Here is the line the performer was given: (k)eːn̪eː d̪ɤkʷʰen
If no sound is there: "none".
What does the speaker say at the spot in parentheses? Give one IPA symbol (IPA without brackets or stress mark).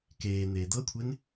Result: k